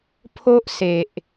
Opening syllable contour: high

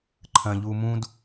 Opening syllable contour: high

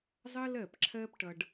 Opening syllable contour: high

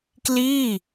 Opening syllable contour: falling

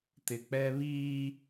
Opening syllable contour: low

